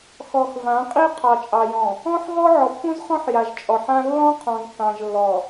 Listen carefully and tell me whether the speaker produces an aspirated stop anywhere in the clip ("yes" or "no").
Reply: yes